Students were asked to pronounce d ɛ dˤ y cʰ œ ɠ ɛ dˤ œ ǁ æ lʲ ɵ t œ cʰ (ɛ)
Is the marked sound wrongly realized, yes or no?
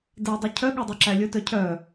yes